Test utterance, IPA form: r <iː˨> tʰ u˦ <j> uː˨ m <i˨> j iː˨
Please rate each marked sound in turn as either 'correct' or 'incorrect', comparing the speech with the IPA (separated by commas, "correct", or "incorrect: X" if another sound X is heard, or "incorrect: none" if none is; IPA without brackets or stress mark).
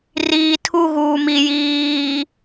correct, incorrect: ɣ, correct